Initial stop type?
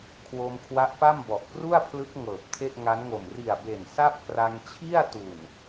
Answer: aspirated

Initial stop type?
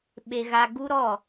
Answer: implosive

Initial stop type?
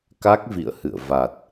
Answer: plain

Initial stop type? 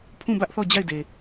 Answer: aspirated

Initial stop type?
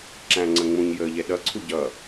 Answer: click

